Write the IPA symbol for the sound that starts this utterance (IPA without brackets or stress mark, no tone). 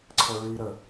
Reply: ǀʰ